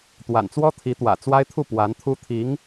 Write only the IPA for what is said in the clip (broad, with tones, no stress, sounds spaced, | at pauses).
t̪ w a̰˨˩ n t͡s w ɔ˥ t̪ʰ i˧˥ t̪ w ä̰˨˩ t͡s w a˥ ɪ̯ t̪ʰ u˥˩ p w a˧˥ n t̪ʰ u˥ t̪ʰ i˧˥ ŋ